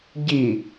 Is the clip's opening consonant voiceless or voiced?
voiced